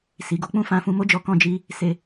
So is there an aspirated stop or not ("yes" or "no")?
no